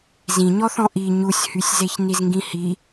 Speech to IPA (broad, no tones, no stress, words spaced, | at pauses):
zĩɲɔθɔ̃ ʔi ɲusʲhysʲzeç nizŋɡĩhi